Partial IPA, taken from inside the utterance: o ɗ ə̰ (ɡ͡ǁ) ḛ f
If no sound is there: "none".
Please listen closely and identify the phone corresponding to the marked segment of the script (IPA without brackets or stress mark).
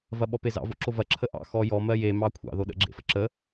ɡ͡ǁ